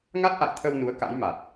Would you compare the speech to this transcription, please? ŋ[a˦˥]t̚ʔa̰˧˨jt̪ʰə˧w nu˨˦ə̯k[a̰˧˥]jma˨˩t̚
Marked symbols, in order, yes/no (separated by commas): yes, yes